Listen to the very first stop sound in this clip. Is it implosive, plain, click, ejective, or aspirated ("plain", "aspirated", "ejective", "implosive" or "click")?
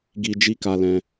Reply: plain